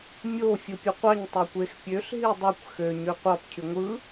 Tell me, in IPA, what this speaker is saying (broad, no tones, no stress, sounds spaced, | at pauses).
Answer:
mʲ o fʲ ɯ pʲ o qʷ ɑ ɲ tˤ æ kʷ e x pʲ ø ɬ ɦ i dˤ ø kʷ x ø ɲ ø qʷ ɑ p cʰ y ŋʷ ɯ